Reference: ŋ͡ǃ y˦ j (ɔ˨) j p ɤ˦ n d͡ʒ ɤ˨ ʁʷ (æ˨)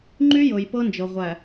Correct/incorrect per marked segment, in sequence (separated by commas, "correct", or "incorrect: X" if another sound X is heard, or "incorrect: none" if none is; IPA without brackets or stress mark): incorrect: ɤ˨, correct